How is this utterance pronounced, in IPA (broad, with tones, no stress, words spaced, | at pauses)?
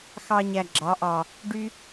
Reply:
xɑ˧ɲæ˨ɡ͡ǁɑ˨˦ʔɑ˨ | ɖy˦